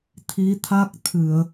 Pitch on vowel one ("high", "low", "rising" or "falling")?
rising